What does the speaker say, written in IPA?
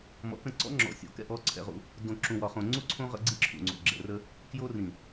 m ɔ̰˨˦ k ə̃˦˨ ǀ ɔ̰˦ ŋ͡ǁ ɔ̰˨ sʲ o̰˨ k ɛ̰˦ ʔ ɔ˨˦ ǀʰ ɛ̰˦ ʁ ṵ˦ | d õ˨ ǁ ũ˨ w ɒ˨ χ õ˨ ŋ͡ǀ u˦ ǀʰ õ˦ ʁ ə̰˦ ɡ͡ǀ i˦ ǁʰ ṵ˨ ŋ͡ǀ o̰˨ ɡ͡ǁ ɛ̰˨ r ə˦ | k j o˦ r ĩ˨

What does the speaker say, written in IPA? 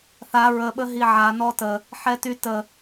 θ a ɹ ə ɓ ə ɦ i ʕ a n ɔ t ə | ħ ɛ t y t ə

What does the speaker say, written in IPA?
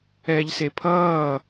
ɛː ʎ s e pʰ ʌː

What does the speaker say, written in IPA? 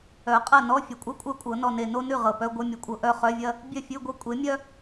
œ˨˩˦ qʼ ɐ˥˨ n ɔ˧˥˧ fʲ ɐ˨˩ kʷʼ œ˥ kʷʼ œ˥˨ kʷʼ ɤ˨˩˦ n ɔ˨˩ n e˨˩ n o˥ n ʉ˥˨ ʁ ɤ˨˩ p œ˧˥˧ ɡʷ œ˧˥˧ mʲ ɔ˩˥ kʷʼ ɤ˨˩ ʔ œ˥˨ χ œ˧˥˧ vʲ ɐ˥ | bʲ œ˥˨ fʲ ʉ˧˥˧ ɡʷ ɤ˥ kʷʼ e˩˥ mʲ œ˥

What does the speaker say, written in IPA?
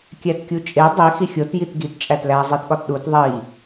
kʲ æ t kʲ u t͡ʃʼ e dˤ i x i xʲ o t j i t ɡ i t t͡ʃʼ æ t l æ zˤ i t ɠ ɒ t ɗ u t ðˤ i

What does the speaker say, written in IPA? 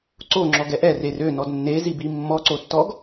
ǀ o ŋ͡ǁ ɔ ɡ ɛ ʔ ɛ r e r ø n ɔ d nː e z i b i mː ɔ ǀ o tː ɔ ɡ

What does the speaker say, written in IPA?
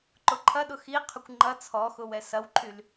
ǃ ʊ ǃʰ ɐ ɗ ʊ x i qʰ ʏ kʷ ŋ͡ǃ ɐ t͡sʰ ɔ x ʊ w ɛ s ɐ w ǃʰ y l

